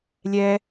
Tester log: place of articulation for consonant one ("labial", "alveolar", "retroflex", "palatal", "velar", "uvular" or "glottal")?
alveolar